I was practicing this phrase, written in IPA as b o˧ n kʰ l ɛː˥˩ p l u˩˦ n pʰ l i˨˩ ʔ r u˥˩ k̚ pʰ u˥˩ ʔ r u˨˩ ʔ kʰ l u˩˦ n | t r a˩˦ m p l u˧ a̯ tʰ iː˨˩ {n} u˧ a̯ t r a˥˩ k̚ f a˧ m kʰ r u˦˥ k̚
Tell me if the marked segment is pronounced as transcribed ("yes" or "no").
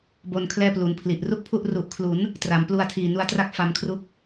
yes